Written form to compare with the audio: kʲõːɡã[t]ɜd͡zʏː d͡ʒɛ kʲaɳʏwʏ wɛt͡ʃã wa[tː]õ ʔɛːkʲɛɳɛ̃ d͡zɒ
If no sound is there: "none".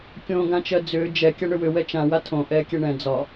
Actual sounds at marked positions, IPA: t͡ʃ, tʰ

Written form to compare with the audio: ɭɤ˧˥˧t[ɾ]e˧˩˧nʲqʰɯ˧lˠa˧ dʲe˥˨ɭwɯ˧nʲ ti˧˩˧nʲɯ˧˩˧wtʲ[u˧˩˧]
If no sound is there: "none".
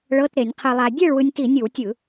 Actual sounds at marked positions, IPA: ɾ, ɯ˧˩˧

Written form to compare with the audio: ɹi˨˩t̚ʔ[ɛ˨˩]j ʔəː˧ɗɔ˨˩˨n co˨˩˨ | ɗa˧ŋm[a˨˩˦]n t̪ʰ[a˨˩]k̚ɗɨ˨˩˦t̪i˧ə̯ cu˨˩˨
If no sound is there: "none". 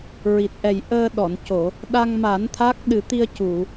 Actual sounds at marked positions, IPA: ɛ˨˩, a˨˩˦, a˦˥

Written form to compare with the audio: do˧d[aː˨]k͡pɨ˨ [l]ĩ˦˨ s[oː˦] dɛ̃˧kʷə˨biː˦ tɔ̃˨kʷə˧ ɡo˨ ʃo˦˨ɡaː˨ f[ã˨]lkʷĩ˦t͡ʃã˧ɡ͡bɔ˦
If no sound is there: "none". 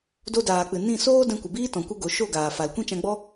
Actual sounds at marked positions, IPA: aː˨, n, oː˦, a˨

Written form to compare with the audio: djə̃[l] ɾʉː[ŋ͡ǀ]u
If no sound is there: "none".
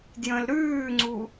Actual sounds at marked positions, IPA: l, ŋ͡ǀ

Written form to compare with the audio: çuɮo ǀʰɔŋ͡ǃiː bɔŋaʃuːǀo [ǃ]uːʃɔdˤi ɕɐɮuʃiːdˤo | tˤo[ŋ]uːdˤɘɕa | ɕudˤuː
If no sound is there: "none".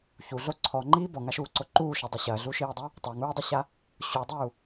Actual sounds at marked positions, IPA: ǃ, ŋ

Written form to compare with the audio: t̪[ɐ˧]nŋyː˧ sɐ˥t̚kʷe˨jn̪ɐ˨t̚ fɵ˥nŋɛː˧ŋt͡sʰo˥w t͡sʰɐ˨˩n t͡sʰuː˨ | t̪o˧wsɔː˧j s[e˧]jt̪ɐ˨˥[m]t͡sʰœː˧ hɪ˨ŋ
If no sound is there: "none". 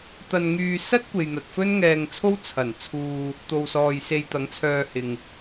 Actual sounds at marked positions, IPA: ɐ˧, e˧, ŋ

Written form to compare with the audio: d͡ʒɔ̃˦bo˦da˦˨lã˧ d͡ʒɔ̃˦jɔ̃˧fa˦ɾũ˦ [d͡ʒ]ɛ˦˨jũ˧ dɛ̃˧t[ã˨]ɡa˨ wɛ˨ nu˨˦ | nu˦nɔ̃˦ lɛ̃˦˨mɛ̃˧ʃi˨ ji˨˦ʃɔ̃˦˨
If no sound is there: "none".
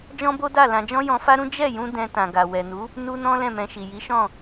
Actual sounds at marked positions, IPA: d͡ʒ, ã˨

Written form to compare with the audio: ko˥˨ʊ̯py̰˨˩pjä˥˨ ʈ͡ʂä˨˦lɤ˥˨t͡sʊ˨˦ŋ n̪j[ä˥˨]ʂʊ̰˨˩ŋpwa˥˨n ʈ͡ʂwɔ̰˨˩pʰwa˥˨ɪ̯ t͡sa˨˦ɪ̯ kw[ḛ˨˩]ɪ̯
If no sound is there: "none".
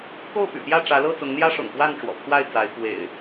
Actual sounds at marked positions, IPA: ä˦, ḛ˨˩

